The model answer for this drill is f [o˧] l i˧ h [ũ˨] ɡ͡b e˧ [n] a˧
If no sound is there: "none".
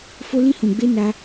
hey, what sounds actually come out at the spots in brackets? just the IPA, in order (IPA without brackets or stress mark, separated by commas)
o˧, ũ˨, n